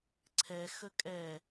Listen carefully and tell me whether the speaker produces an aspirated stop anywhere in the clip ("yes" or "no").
yes